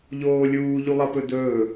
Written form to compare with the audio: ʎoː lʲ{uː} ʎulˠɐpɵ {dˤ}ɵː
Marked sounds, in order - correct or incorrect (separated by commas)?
correct, incorrect